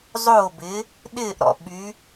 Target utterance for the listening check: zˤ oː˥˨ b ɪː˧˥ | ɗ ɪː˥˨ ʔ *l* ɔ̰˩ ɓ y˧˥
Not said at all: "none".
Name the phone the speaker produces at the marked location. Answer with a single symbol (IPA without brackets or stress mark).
ɾ